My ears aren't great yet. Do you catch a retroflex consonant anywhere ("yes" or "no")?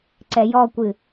no